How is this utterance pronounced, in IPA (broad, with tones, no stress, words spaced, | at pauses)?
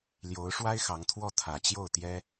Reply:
ljo˧˥ʊ̯ʂwa˥ɪ̯ xɑ˧˥ŋt̪ʰwɔ˥˩ t̪ʰä˨˩t͡ɕjo˥˩ʊ̯ t̪jɛ˥